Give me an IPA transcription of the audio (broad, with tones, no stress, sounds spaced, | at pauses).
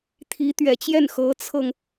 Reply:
t̪ʰ i˧˥ t̪ ɥ ɛ˨˩ t͡ɕ j ɛ˥˩ n x ɤ˧˥ t͡sʰ ɤ˧ ŋ